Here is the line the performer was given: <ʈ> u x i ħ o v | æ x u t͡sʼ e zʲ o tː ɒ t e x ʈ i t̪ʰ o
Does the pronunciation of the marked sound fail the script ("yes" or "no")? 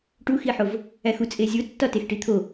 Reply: no